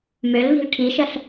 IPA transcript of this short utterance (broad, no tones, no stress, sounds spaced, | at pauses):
m ø l v i̤ l ʈʰ i ʃ ə ɬ